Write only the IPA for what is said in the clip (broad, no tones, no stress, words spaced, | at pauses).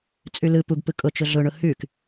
t͡sʼʉlɯ puɡpɯ kʼʊt͡ʃʊ ɮʊɳʊ hʉk